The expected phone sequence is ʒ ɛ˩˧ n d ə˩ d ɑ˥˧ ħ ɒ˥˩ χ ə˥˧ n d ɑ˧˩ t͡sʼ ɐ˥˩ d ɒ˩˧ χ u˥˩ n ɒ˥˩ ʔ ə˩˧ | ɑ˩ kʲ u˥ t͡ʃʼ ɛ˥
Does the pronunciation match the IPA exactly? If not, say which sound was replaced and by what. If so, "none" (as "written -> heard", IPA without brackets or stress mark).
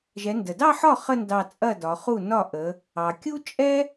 none